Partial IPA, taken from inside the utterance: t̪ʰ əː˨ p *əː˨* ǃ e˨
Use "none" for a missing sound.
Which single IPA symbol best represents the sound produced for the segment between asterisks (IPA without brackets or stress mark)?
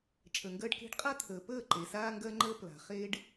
əː˦˨